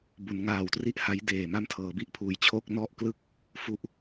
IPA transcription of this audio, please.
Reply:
b u˩˦ n ŋ aː˨˩ w t r i˥˩ ʔ h a˦˥ j d eː˨˩ m a˥˩ m tʰ ɤː˩˦ b i˥˩ ʔ pʰ uː˩˦ j t͡ɕʰ o˥˩ k̚ n ɔ˥˩ ʔ k l ɯ˥˩ k̚ | f u˥˩ ʔ

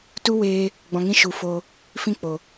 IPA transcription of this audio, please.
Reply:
t u˦ w eː˧ | ɡ͡b ɔ̃˧ ŋ ĩ˦ ʃ u˨˦ f oː˧ | f ĩ˦ k͡p o˨

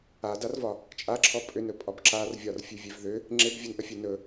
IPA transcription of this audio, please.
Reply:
a d a r v ɒ | t͡ʃʼ a ǁʰ ɔ pʼ ʏ n ɵ pʼ ɒ b ǁ a r vʲ ɒ r fʲ ʉ vʲ e v ð ʏ | ŋ͡ǁ e b vʲ ɵ n ʔ ə fʲ e n ɵ

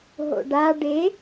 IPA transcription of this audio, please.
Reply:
ɦ o̰ ɖ a ɖ e

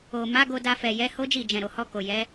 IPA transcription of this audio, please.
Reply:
o˨ m a˨˦ ɡ o˧ d a˧ f ɛ˨ j ɛ˨˦ h o˦ d͡ʒ i˦˨ d͡ʒ ɛ̃˨ ɾ o˨ h ɔ˧ k o˨ j ɛ˨˦

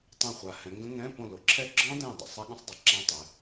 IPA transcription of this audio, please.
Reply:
tˤ ɛ̃˧˩ χʷ a˩ h ɛ̃˩˧ ŋ ɡ ə̃˦˥ ŋ ɛ̃˧˥˧ p õ˧˩ l o˩ ǁʰ ɛ˦˥ ɡ͡ǁ ɔ̃˦˥ d ɛ̃˧˩ dˤ ə̰˩ sˤ a˦˥ ɠ ə̃˦˥ sˤ dˤ o˩ ǁ ã˦˥ tˤ ɛ˩˧

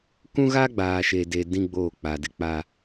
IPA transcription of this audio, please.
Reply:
k ũ˦ ɣ a˦ ɡ͡b aː˨ ʃ e˨ d e˨ d ĩ˦ ɡ͡b oː˦˨ k͡p a˨ d ɪ˦ k͡p a˦

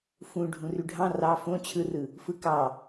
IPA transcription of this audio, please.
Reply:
f ũ ɖʱ ũ r y ɖʱ ɑ̃ r ɑ f õ t͡ɕʰ ɯ r ɯ | f ɯ k ɑ

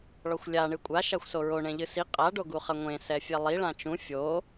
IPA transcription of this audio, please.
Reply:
ɭ ɔ xʷ lʲ a ɳ ɨ kʷʼ a ʃ a xʷ s o ɹ o ɳ ẽ ʎ ɨ s i qʼ a ɖ o ɡ u χ ɐ ŋʷ ẽ s ɛ fʲ e lˠ i ɭ ã t͡ʃ ũ fʲ o

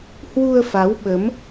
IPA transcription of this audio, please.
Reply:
h w u˧ ə̯ f a˨˦ w ɓ ə˨˦ m

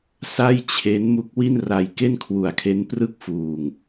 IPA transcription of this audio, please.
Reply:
s a˥˩ j t͡ɕʰ e˦˥ n m u˦˥ k̚ w i˥˩ n r a˧ j k e˥˩ n kʰ w u˨˩ a̯ kʰ e˦˥ n p r ɯ˥˩ k̚ f uː˨˩ ŋ

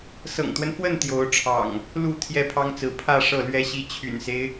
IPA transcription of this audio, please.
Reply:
s ɤ̰˨˩ ŋ t̪ w ə˦ n f w ə˥˨ n t̪ j o˨˦ ʊ̯ ʈ͡ʂʰ ɑ̰˨˩ ŋ | l u˥˨ t̪ʰ j ɛ˥˨ pʰ ɑ˦ ŋ t͡s ɹ̩˨˦ pʰ ä˥˨ ʂ ɤ˥˨ l ɥ ɛ˦ ɕ i˦ t͡ɕʰ y̰˨˩ n s e˦ ɪ̯

